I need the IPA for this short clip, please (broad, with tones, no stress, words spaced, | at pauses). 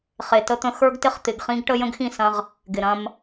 χe˨tə˦t̪ə̃˦ xə˞˦ɡtɪ˦χt̪ɪ˨ɡ χĩ˦ɡʈə˦ jə̃˦ɡxĩ˦˨sɐ̃˦ʁ | ɡɪ˨ɾɐ̃˦m